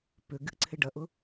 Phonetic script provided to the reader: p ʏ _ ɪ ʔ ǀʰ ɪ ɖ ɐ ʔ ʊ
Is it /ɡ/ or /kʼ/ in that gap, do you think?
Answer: ɡ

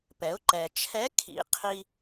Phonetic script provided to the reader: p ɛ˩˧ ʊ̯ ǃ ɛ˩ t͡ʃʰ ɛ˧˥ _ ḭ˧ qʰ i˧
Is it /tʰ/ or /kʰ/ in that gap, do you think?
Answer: kʰ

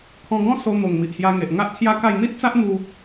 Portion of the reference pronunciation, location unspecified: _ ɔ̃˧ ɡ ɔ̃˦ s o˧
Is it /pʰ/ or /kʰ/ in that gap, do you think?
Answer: kʰ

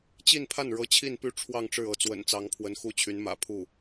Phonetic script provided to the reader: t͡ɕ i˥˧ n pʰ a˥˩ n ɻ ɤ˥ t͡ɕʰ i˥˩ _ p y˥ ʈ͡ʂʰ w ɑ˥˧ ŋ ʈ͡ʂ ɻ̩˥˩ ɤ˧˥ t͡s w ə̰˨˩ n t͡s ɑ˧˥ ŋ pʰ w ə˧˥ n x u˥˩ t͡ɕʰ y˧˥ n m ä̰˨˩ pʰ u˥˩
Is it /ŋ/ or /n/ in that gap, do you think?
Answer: n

